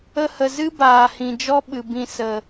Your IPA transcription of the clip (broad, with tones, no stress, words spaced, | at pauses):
ə˧hə˨ zɨ˦baː˨ hĩ˨d͡ʒɔ˦ ɓɨ˨bĩ˧ sə˨